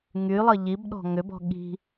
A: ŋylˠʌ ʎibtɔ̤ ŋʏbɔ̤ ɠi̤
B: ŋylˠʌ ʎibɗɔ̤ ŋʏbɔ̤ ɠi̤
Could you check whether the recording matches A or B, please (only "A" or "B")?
B